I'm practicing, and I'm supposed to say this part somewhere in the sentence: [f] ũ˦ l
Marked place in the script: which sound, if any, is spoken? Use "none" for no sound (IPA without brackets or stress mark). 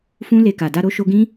f